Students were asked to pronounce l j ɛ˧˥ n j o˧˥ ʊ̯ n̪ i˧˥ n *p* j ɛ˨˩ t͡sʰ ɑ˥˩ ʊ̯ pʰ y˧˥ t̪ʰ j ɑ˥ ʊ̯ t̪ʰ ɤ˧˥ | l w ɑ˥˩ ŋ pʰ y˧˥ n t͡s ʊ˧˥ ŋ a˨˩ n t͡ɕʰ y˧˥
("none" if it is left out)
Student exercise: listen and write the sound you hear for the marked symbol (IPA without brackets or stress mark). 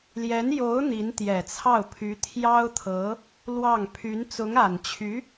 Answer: t̪